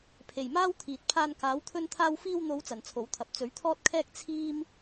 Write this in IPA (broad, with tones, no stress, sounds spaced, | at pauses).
pʰ e˨˩ j m aː˥ w t̪ʰ iː˨ t̚ pʰ aː˧ n k aː˨˥ w t̪ʰ ɵ˥ n t̪ʰ aː˥ w f iː˧ w n̪ o˨˧ w t͡s ɐ˨ n t͡sʰ o˨˥ w t̪ʰ ɐ˨˥ p̚ t͡s ɵ˨˥ ɥ t̪ʰ ɔː˥ t̚ kʰ ɛː˥ k̚ t͡sʰ iː˥ m